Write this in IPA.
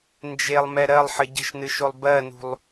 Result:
nd͡ʒelˠmɛ ɾɜlˠħə ɟə̤ʃnɨʃolˠ bɜnṳlˠ

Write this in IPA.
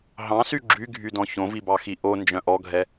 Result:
ɦɑ̃sy ɡ͡ǁyɡʱydɔ̃ çõvibɑxi ʔond͡ʒœ̃ ʔɔɡʱɛ

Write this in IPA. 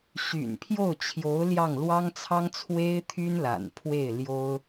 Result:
ɕy̰˨˩npʰjo˥˩ʊ̯t͡ɕʰjo˧˥ʊ̯ ljɑ˥˩ŋ lwɑ˥ŋt͡sʰɑ˥ŋt͡sʰwe˥ɪ̯ t̪ʰy˥nla̰˨˩n pʰwe˥˩ɪ̯ljo˥ʊ̯

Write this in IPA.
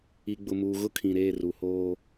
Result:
i˨ɡ͡bʊ˨muː˨ ɣʊ˦kʰĩ˨ ɾeː˦˨ru˨hoː˦

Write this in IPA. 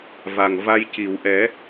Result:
va˨˩ŋva˧jci˨˩˨w ʔɛ˨˩˦

